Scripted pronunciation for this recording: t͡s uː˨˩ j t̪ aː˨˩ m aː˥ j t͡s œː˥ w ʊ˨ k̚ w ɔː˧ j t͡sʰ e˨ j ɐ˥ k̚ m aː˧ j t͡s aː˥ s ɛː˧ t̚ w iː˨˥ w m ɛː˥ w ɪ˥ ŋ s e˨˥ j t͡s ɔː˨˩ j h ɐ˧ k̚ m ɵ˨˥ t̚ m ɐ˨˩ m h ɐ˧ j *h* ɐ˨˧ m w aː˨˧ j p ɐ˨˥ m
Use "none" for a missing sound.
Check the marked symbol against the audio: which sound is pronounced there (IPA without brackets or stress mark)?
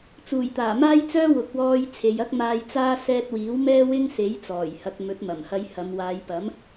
h